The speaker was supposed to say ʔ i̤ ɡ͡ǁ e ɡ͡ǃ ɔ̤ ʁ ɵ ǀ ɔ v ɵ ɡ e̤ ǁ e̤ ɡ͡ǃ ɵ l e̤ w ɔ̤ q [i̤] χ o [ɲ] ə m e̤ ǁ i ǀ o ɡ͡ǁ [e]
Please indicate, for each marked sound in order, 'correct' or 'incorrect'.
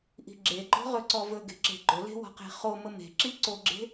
incorrect, incorrect, incorrect

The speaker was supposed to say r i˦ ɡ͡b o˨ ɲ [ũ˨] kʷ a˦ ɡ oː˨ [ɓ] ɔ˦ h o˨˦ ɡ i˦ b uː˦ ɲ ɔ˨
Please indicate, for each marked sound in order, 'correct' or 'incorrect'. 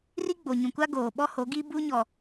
correct, correct

